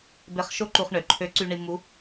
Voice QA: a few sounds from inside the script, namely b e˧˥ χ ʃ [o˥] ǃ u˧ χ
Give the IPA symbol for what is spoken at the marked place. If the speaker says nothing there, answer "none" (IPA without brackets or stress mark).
o˥